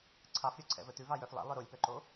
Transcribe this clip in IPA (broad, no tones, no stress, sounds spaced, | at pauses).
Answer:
ǀʰ ɑ f ɾʲ o ǀʰ ɛ̰ v ɵ t ʉ v ɑ j œ f lˠ ɛ̰ lˠ œ ɾ o lʲ p œ ǃ o